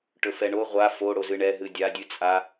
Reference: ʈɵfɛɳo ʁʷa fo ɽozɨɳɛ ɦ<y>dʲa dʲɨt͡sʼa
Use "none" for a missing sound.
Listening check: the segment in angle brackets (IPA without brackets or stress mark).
ɨ